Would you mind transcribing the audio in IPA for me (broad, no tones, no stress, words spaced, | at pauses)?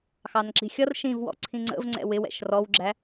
xɑnǁi̤xʲʌr ʃĩvwɔ̰ ǀʰĩŋ͡ǀə̰v ŋ͡ǀɛ̰wɪ wɛ̰ʃrɔwɡ͡ǁæ